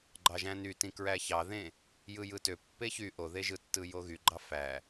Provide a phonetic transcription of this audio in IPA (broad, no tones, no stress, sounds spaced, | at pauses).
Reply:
ɡ͡ǃ ɑ ʒ æ̃ n y t ĩ k ɹ æ ç ɑ ð ẽ | j ɯ j ɯ t ø pː e ç y ʔ o ð e ʒ ɯ tː ɯ j o ɣ y ɡ͡ǃ ɑ f æ